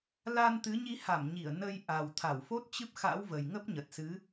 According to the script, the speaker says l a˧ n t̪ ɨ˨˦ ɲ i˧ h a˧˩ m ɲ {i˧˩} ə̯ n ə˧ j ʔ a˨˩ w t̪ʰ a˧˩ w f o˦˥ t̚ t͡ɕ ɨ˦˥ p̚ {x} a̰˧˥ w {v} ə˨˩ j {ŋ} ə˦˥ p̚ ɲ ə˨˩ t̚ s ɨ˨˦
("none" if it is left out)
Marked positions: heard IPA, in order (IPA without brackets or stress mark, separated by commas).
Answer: i˧˩, x, v, ŋ